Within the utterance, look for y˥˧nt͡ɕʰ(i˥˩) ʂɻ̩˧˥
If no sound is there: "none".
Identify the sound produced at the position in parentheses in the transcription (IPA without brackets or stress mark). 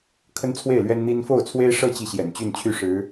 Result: y˥˩